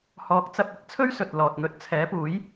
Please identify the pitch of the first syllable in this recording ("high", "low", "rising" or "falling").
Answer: rising